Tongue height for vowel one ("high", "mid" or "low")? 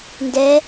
mid